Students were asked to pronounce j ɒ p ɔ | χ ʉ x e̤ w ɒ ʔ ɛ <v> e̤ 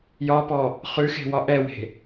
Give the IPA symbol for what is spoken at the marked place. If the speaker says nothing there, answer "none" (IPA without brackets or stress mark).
w